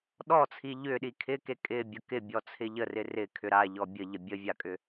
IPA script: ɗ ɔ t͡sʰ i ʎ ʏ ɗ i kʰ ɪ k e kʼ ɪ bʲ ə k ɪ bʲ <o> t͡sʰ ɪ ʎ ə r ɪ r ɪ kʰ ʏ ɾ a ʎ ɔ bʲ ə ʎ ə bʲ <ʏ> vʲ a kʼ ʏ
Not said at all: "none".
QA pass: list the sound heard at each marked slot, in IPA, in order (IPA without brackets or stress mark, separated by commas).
ɔ, ə